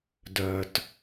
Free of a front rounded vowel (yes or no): no